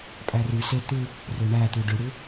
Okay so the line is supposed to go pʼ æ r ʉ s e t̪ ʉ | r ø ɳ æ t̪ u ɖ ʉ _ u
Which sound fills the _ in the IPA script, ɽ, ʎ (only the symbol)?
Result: ɽ